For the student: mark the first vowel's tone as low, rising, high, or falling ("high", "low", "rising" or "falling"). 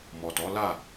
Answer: low